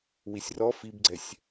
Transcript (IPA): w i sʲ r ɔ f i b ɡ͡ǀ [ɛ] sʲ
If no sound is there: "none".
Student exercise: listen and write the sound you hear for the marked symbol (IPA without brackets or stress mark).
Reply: ɛ